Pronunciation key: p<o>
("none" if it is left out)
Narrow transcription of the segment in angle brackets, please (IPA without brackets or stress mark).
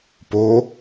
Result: o